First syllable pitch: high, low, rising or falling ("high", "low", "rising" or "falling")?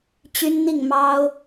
high